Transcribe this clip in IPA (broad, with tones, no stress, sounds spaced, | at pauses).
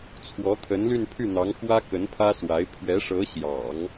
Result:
t͡sʰ w ɔ˧˥ t̪ʰ ə˧˥ n l y˥˧ n pʰ y˥˩ n̪ ɑ˧˥ ŋ x w ä˥ k ə˧˥ n pʰ ä˥ s w a˧˥ ɪ̯ pʰ ɥ ɛ˧˥ ʂ ɤ˧˥ ɕ j ɑ̰˨˩˦ ŋ